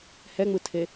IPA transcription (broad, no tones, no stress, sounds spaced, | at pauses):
h ɛ ŋ͡m ɯ tʰ e